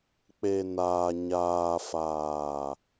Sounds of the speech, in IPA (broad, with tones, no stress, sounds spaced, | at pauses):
k͡p e˨ n aː˨ ɲ aː˨ f aː˨